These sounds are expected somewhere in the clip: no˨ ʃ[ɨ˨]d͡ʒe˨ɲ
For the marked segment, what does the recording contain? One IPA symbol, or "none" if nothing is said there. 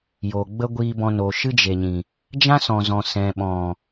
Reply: ɨ˦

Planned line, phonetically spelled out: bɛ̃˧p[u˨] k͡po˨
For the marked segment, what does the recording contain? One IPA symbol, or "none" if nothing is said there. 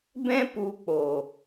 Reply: u˨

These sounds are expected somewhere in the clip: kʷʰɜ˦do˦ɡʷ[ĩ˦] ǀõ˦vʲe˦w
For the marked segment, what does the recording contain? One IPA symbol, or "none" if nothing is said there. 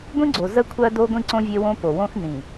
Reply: ĩ˦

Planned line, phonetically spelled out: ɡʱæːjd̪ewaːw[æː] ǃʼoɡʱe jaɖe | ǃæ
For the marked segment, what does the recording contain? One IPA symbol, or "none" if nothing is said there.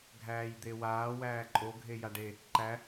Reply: æː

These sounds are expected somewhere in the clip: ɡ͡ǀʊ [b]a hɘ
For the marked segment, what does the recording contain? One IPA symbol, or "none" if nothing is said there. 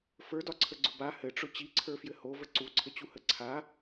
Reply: b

